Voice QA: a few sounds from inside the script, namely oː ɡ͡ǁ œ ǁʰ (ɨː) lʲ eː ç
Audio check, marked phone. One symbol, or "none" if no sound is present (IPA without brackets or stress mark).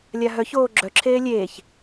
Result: eː